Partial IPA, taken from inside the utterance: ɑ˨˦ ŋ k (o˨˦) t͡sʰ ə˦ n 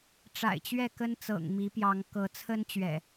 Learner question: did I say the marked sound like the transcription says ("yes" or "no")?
no